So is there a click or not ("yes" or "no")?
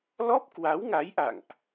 no